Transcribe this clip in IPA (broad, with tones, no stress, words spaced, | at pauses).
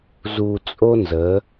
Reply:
zu˨t͡sʼo˦nzə˨˦